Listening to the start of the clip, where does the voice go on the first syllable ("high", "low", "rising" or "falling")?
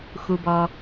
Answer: high